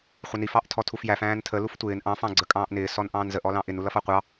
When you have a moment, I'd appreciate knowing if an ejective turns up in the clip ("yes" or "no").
yes